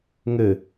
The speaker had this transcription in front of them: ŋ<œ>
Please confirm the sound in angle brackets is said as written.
no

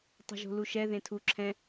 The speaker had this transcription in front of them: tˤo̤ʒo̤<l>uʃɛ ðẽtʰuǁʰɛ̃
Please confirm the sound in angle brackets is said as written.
yes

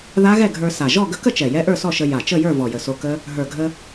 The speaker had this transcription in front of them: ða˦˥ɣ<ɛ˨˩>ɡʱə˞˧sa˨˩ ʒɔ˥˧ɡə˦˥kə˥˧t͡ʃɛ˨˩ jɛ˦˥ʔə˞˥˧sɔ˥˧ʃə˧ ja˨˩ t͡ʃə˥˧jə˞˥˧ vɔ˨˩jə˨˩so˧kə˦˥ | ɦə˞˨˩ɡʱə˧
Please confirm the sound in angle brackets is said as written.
no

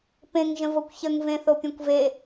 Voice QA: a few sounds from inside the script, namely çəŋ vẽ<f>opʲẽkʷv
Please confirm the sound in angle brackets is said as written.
no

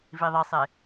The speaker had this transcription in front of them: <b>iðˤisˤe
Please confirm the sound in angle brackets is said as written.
no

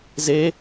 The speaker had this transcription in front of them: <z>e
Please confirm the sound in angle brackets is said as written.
yes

